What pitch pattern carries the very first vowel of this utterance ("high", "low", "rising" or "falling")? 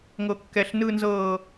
high